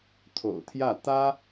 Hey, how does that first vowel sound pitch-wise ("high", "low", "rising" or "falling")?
low